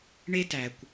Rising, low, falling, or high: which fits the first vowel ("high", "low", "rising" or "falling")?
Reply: high